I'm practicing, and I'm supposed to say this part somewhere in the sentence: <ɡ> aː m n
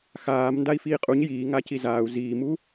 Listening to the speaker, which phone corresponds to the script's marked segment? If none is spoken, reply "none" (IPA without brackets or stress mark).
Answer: x